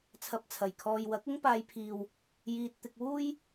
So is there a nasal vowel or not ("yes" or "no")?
no